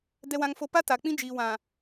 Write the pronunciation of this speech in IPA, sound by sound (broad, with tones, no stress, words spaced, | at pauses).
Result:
dɛ˦wã˦ŋfo˦ pa˦ta˨ k͡pĩ˦d͡ʒiː˨wã˨